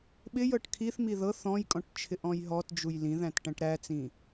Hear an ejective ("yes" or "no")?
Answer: yes